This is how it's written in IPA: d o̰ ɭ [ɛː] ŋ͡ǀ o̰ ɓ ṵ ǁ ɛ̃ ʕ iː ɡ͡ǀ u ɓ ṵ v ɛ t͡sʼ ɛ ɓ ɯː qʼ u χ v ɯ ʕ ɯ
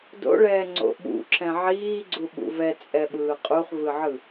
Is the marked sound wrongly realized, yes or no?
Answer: no